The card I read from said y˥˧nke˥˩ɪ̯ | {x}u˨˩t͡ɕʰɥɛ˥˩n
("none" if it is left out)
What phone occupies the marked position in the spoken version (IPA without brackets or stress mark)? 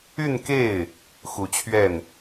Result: x